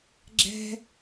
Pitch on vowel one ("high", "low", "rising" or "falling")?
high